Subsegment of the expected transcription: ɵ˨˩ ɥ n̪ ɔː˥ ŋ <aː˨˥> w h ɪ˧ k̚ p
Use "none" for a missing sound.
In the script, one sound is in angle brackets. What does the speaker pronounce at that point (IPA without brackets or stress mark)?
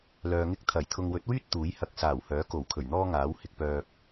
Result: aː˨˥